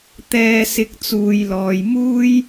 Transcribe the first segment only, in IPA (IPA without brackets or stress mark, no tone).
t̪